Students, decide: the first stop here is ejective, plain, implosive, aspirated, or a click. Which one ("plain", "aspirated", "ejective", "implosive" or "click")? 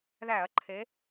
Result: click